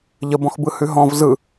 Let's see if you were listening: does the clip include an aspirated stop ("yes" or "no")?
no